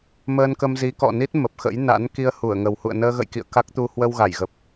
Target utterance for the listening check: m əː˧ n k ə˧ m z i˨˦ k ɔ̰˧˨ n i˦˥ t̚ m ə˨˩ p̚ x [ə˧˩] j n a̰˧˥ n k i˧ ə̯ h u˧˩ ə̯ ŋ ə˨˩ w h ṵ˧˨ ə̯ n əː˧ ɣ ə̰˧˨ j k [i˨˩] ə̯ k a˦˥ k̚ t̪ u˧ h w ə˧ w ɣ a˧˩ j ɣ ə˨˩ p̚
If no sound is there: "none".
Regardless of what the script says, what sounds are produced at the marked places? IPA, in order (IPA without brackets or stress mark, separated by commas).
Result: ə̰˧˥, ḭ˧˨